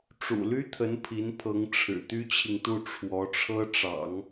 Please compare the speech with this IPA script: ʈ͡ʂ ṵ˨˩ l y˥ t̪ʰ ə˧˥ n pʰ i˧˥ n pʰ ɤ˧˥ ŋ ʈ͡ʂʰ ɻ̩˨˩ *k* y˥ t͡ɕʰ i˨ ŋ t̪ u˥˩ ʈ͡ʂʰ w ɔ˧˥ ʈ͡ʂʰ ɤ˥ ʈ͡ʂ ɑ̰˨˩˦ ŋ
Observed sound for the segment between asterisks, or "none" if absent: t̪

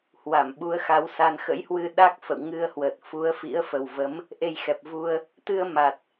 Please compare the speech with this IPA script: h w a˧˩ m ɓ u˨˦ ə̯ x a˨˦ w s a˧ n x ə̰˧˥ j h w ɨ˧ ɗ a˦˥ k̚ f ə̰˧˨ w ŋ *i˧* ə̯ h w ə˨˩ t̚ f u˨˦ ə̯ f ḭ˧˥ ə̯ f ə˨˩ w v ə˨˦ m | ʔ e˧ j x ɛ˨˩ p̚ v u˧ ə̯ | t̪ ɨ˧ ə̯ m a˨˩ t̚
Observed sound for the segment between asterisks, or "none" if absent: ɨ˧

